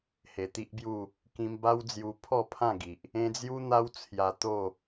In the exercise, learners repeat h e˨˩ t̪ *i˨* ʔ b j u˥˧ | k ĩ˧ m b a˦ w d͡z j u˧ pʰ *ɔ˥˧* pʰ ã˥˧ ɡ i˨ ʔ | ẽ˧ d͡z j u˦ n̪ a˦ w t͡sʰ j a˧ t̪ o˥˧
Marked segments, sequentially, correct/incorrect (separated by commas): incorrect, correct